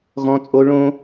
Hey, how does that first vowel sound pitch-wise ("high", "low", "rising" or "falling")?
high